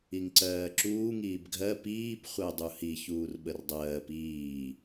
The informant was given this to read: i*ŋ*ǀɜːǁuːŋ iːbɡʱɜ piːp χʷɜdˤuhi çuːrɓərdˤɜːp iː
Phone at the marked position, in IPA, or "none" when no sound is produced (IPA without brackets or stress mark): ŋ